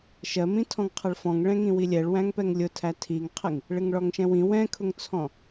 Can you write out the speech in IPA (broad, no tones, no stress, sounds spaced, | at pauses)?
ʃ ɜ m ĩ tʰ ɔ̃ ŋ qʰ ʌ ɭ f ɔ̃ ŋ ɭ ɛ̃ ŋ ĩ w i lʲ ɛ ɭ w æ̃ ŋ p ɛ ŋ lʲ ʊ tʰ æ tʰ i ŋ qʰ ɪ ŋ | ɭ ɪ ŋ ɭ ɔ ŋ ʃ ɛ̃ w ĩ w ɛ̃ kʰ ʊ ŋ t͡sʰ ɔ̃